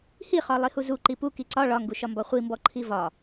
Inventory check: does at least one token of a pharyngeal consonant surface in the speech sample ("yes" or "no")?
no